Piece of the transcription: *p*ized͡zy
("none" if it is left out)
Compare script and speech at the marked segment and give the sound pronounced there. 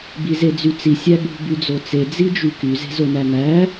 b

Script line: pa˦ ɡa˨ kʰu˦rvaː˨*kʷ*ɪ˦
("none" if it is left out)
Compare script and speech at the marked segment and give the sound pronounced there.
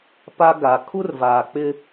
k͡p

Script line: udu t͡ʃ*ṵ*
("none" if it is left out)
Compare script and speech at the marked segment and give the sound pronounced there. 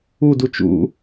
ṵ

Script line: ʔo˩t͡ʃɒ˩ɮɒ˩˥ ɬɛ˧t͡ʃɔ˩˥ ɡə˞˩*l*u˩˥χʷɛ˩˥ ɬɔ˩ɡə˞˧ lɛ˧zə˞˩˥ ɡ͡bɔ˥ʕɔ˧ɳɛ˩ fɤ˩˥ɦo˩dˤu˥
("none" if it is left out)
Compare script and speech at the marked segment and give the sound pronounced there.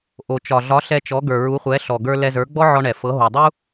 ɹ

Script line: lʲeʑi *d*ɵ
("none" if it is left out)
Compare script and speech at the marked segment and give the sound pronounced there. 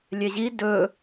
d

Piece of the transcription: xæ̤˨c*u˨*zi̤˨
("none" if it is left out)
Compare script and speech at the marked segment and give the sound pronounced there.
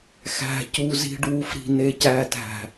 u˨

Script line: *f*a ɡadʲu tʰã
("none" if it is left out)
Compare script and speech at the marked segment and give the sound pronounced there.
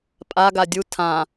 pʼ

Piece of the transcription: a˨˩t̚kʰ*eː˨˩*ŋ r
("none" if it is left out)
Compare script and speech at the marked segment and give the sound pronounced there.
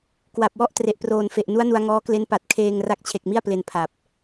eː˧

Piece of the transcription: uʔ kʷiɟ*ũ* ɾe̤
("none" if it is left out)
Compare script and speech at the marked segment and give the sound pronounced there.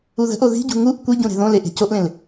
ũ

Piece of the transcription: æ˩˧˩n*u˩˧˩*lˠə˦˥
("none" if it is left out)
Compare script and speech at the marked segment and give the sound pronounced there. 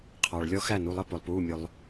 u˩˧˩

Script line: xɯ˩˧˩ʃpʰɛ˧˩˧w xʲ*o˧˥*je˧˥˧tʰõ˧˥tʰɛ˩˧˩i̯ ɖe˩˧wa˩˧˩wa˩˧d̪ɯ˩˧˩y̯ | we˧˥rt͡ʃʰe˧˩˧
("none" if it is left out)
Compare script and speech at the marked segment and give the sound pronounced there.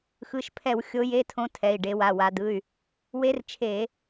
o˧˥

